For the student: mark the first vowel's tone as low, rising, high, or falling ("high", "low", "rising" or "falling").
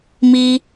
high